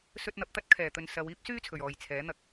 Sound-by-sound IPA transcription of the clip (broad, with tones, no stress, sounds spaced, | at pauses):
s ɵ˧ t̚ n̪ ɐ˨ p̚ t̪ ɐ˥ t̚ kʰ ɛː˨˩ t̪ ɵ˨ n s ɐ˨˧ w iː˥ p̚ s yː˥ t͡sʰ ɵ˨˩ ɥ ɔː˨˩ j t͡sʰ ɛː˨˥ n̪ ɐ˧ k̚